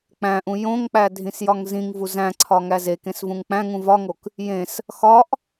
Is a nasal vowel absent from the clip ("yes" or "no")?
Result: no